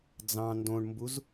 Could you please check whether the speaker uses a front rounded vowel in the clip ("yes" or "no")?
no